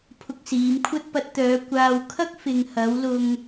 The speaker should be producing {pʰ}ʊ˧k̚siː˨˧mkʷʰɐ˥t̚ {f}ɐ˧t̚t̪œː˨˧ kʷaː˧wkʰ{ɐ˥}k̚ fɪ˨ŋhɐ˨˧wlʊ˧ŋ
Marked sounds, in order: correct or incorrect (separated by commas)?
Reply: correct, incorrect, correct